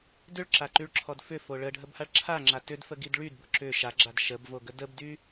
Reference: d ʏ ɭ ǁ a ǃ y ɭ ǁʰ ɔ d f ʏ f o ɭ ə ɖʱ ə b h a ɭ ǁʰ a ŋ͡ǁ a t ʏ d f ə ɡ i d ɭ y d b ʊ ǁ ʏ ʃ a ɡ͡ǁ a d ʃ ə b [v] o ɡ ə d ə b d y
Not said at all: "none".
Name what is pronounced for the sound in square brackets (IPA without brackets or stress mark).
v